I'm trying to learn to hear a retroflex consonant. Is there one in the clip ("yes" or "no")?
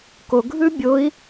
no